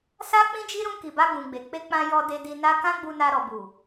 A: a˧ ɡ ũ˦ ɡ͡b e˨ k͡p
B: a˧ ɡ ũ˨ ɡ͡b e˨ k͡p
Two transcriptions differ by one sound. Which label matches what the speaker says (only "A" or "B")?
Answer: B